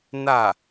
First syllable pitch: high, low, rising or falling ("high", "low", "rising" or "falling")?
falling